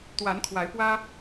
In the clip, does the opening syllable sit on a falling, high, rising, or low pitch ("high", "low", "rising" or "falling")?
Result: rising